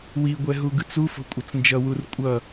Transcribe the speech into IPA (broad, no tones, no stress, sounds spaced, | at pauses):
w i ɡʷ ɛ ɦ u ɡ ɯ t͡s u f o̤ kʷʼ ʌ t͡s n d͡ʒ ʌ w u r kʷʼ ʌ